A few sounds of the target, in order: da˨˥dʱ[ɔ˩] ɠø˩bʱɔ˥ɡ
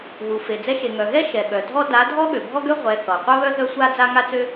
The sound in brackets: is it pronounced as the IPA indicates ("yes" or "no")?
no